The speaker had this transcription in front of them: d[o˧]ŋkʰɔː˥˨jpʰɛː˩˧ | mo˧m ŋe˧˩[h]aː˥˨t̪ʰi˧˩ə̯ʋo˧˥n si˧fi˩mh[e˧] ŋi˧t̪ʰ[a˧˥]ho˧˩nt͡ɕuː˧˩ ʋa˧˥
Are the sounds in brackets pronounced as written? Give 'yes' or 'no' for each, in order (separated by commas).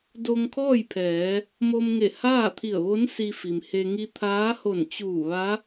yes, yes, yes, no